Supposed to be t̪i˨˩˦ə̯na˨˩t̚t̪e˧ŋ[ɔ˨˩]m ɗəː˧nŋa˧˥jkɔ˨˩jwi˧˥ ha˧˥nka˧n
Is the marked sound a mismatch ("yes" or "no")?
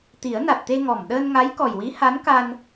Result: no